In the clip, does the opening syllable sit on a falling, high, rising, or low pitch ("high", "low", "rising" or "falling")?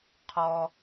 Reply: low